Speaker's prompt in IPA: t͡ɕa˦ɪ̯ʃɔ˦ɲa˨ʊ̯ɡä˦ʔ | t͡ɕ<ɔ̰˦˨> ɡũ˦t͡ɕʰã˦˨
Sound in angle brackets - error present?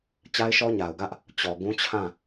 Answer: yes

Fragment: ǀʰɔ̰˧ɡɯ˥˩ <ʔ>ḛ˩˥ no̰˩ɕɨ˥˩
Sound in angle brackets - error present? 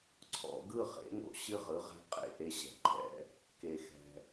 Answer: yes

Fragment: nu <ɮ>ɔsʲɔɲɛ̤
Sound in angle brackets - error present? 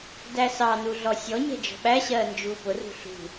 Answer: no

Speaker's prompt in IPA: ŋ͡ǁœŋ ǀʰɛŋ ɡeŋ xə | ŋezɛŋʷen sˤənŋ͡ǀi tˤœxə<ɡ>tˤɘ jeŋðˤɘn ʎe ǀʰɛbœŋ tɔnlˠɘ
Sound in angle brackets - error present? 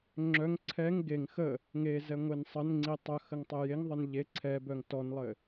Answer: yes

